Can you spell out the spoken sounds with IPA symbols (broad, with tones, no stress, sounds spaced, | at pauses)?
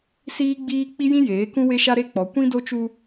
s iː˦ ɡ͡b iː˦ k͡p i˦ j ĩ˦ j eː˨˦ k ũ˦ w e˦ ʃ a˦ ɾ e˦ k͡p ɔ˨˦ kʷ ĩ˦ d o˦ t͡ʃ u˦